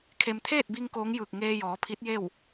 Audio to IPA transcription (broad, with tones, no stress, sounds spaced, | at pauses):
kʰ e˧ m t̪ʰ eː˥˨ t̚ b i˧ ŋ k oː˧˥ ŋ j ɯː˧˩ k̚ ŋ eː˧ j ɔː˩˧ pʰ i˧˥ t̚ j e˥˨ w